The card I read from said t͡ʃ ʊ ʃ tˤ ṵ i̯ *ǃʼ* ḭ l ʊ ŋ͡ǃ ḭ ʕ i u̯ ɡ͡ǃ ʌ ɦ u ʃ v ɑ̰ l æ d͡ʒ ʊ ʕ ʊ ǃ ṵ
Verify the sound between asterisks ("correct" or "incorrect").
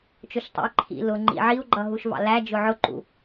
incorrect